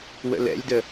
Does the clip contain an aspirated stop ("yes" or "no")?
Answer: no